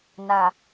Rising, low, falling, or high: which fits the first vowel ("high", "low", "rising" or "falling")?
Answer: low